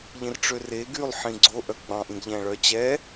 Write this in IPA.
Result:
ʎ ĩ r ʈ͡ʂ ø r e ɡ y lˠ ħ ĩ ɡ͡ǀ o ʔ œ ɡ͡b ɑ̃ ʔ ĩ ɡ ʎ æ̃ ɭ œ t͡ɕ ɛ

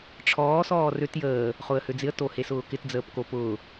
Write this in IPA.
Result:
ʈ͡ʂʰ ɔː s ɔː r ø t j əː | χ ʊ ə̯ h ø d͡z ɪ ə̯ t o h e s ʊː k ɪ t d͡z əː p k o p ʊː

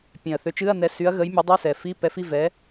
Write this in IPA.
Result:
pʲ ẽ˨˩ ɐ̯ θ ø˨˥ t͡ʃ ɨ˧˥˧ ɐ̯ n ɛ˨˥ s y˨˥ ɐ̯ ɣ ə˨˥ j mʲ ə˨˥ dˤ y˧˥˧ s ɛ˨˩ f i˧˥˧ p ɛ˨˥ f i˧˥˧ v ɛ˨˥

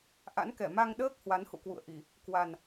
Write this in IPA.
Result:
ʔ a̰˧˥ n k ɛ˧˩ m a˧ ŋ ɗ əː˦˥ k̚ h w a˨˦ n h ṵ˧˨ k w ṵ˧˨ ə̯ ʔ i˧˩˨ | k w a˨˩ n

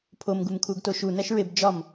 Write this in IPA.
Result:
pʰ o m ɡ u m kʰ u ɡ t o ʃ u n æ ʃ ɹ e b d͡ʒ ɒ m

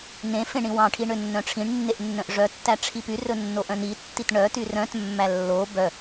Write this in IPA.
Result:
n ẽ f ẽ ɳ ĩ w ɑ̃ ʈʰ i ɳ ø nː œ̃ ʈ͡ʂʰ ĩ ɳ nː e ʔ nː œ̃ ʔ ʐ œ tː æ ʈ͡ʂʰ i p y r ɵ nː o ʔ œ̃ n i tː i t ɳ œ t y r œ̃ t mː æ lː o b œ

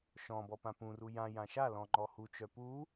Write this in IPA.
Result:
ʃ ɔ̃ b ɔ p ã p ũ r u j ã j ã ʃ a l ɔ̃ ŋ͡ǃ ɔ h u t͡ʃ œ p u

